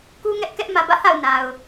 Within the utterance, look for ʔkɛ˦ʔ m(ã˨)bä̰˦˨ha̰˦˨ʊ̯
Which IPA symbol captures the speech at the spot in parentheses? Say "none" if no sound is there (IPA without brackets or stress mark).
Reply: ä˨